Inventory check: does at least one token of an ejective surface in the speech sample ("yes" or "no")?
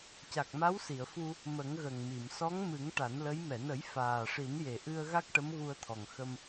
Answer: no